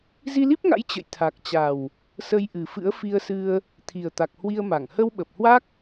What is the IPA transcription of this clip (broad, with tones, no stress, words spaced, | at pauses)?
zi˧li˦˥p̚ŋa̰˧˥j t͡ɕə̰˧˨j t̪ʰa˨˩k̚t͡ɕa˨˩w | sə˧jʔɨ˨˩fɨ̰˧˥ə̯ fi˧ə̯sɨ˧ə̯ | t̪ʰi˨˩ə̯ t̪a˨˩k̚hwi˧ə̯ma˧˩ŋ hə˧wɓə˨˩p̚hwa˦˥k̚